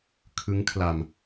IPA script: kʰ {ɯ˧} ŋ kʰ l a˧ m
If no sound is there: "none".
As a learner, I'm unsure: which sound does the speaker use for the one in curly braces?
ɯ˦˥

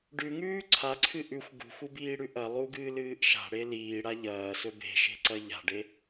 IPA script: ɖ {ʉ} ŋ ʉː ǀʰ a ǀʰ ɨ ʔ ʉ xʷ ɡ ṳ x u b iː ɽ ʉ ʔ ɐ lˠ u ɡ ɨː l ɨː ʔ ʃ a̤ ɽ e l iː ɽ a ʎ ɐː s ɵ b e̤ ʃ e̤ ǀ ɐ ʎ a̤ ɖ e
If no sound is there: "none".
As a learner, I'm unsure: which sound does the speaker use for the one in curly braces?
ʉ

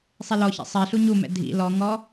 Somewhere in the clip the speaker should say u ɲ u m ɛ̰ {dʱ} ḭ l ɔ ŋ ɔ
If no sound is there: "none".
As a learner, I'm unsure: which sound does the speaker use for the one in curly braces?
dʱ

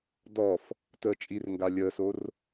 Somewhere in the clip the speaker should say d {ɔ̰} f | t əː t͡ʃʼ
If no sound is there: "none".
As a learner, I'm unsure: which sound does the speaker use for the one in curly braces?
ɔ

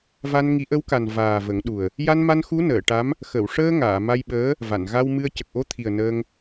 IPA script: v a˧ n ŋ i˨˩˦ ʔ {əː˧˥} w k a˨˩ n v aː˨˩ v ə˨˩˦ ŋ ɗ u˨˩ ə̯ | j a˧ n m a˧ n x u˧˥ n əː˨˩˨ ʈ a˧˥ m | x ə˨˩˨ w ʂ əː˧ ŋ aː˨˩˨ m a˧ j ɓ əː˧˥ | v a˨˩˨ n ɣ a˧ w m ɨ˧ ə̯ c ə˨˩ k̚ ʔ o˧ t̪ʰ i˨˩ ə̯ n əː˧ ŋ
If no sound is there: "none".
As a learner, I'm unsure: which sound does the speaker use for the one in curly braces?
ə˧˥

